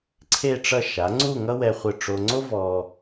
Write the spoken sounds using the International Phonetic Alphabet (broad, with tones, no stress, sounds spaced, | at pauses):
ǀʰ e˥˧ ʈ͡ʂ ʌ˥˧ ʃ a˩˧ ŋ͡ǀ u˥˧ ŋ ʌ˥ w ɛ˧ χʷ ɯ˧˩ ʈ͡ʂ o˧ ŋ͡ǀ o˥ v ɔ˧